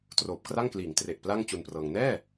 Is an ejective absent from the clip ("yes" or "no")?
yes